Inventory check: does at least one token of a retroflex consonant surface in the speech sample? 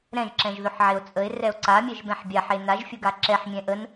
no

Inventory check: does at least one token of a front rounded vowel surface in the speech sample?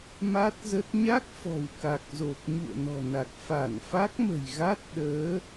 no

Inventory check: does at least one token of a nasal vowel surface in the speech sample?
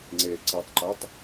no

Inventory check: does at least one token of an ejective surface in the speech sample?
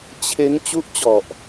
no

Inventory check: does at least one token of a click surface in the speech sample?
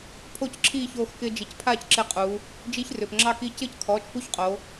yes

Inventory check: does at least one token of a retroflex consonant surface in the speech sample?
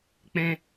no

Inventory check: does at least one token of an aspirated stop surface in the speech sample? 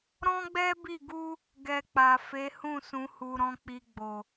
no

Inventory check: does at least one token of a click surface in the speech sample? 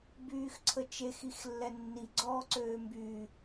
yes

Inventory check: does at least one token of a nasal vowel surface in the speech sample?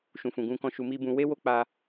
yes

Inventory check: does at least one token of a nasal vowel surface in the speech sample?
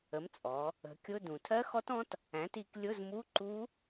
yes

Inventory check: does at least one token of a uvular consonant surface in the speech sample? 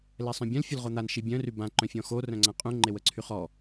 yes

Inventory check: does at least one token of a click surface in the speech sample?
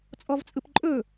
yes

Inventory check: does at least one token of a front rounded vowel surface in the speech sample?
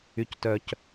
yes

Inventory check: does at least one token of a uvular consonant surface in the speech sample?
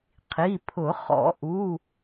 yes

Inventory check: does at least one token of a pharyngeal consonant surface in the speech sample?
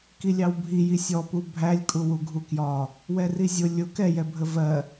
no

